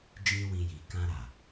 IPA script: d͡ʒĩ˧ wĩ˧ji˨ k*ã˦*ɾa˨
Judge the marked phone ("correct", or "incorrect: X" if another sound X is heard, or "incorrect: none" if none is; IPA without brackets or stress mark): incorrect: ã˧